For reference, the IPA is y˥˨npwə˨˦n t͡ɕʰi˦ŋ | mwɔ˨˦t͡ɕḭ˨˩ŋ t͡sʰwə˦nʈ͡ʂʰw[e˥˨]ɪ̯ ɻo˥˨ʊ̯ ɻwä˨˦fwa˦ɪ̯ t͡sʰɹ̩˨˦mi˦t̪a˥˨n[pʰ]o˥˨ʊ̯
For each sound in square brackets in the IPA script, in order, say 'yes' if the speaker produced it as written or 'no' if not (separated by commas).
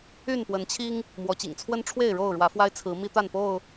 yes, no